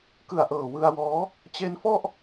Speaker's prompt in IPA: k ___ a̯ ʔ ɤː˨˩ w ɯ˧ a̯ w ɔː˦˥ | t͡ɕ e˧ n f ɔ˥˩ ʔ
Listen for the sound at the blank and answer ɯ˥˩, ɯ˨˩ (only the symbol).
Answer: ɯ˨˩